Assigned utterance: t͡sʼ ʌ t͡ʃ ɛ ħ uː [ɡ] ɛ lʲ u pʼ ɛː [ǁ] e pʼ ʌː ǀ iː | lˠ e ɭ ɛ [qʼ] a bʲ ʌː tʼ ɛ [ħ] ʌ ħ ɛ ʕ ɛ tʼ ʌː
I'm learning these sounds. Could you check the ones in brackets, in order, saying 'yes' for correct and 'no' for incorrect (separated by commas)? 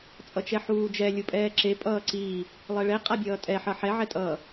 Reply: no, yes, yes, yes